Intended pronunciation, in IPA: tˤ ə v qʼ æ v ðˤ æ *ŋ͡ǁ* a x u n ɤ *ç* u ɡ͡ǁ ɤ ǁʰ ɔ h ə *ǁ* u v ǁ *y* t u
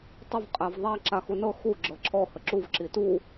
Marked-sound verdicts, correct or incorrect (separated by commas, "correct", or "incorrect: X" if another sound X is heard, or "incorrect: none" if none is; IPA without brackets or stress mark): incorrect: ǁ, incorrect: x, correct, incorrect: i